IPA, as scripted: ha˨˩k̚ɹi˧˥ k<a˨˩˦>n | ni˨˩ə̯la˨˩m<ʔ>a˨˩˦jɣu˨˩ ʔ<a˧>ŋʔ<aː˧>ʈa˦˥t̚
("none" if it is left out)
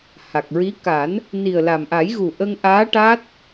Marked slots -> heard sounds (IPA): a˨˩˦, ʔ, ə˧, aː˧˥

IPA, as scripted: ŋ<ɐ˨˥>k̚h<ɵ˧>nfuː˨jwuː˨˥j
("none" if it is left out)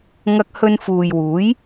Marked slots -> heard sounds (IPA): ɐ˧, ɵ˧

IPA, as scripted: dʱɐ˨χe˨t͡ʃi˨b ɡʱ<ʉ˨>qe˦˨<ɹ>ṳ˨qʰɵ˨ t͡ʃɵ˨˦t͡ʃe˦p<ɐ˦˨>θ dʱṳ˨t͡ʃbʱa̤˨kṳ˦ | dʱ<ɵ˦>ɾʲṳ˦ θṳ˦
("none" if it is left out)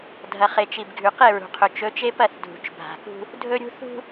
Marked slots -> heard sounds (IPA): ʉ˨, ɹ, ɐ˦˨, ɵ˦

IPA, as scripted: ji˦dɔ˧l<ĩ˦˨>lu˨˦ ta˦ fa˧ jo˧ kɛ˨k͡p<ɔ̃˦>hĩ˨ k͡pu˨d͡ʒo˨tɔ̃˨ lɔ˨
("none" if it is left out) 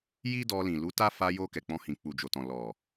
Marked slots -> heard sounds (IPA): ĩ˨, ɔ̃˧

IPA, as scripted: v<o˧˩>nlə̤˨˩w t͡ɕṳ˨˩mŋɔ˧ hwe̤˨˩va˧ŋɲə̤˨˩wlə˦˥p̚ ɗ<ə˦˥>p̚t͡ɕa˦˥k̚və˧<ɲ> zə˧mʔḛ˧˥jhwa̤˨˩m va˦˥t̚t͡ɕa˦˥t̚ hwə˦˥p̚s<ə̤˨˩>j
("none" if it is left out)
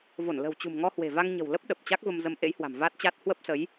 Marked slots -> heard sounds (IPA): o˧˩, ə˨˩, m, ə˨˦

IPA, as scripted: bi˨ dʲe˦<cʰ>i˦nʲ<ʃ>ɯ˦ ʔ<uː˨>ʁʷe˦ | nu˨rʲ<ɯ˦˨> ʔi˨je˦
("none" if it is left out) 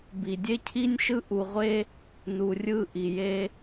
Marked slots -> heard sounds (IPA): cʰ, ʃ, u˨, ɯ˦˨

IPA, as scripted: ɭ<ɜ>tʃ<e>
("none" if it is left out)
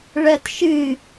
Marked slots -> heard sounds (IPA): ɜ, ɨ

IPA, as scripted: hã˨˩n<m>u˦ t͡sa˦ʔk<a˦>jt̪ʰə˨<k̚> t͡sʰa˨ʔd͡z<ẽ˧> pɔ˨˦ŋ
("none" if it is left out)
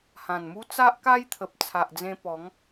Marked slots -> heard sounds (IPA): m, a˦, p̚, ẽ˧

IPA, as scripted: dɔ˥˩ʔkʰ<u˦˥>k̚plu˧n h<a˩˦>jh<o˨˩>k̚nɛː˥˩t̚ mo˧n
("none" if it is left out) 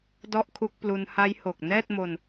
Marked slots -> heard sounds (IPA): u˦˥, a˦˥, o˨˩

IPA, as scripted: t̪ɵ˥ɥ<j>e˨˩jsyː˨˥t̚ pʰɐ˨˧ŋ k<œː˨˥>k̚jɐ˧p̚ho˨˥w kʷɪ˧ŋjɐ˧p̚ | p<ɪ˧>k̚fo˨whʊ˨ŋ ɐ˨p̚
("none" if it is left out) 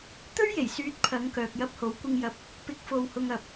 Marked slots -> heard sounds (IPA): j, œː˨, ɪ˨˥

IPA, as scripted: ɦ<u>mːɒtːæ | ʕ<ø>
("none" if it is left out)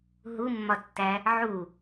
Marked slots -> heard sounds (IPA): u, u

